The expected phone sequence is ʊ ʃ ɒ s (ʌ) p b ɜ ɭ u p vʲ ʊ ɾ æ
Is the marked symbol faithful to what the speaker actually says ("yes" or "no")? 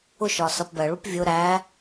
yes